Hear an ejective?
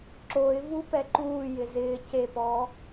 no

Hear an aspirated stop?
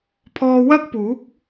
yes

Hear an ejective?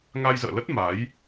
no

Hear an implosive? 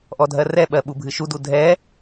yes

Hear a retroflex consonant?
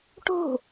yes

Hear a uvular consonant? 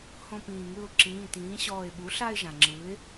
no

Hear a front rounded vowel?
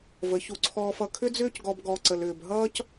yes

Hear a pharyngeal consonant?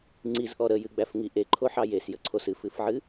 yes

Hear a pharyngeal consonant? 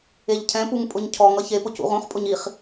no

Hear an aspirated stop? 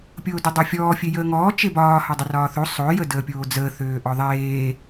no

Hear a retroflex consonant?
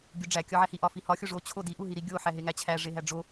yes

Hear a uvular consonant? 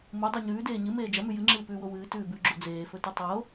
no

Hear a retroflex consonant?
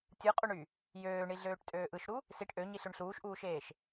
yes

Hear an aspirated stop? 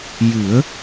no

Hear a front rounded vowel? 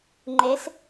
no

